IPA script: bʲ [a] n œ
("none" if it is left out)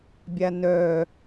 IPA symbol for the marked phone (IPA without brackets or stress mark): a